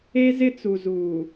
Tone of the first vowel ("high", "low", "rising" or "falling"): high